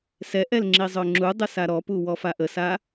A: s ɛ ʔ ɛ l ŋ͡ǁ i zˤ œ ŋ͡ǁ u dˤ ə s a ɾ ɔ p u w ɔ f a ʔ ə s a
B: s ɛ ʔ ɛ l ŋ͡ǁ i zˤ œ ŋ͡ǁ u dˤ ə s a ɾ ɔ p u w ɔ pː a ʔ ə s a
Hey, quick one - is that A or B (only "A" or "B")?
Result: A